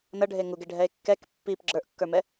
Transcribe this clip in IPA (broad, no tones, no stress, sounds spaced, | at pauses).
n ʌ ɖʱ e ŋ u ɡ e ɖʱ ɛ e̯ kː ɛ k pː i p ɡ͡ǁ ə˞ ʔ kː ə˞ m ɛ